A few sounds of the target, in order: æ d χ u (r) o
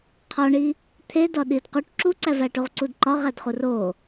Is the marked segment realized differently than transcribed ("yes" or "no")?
no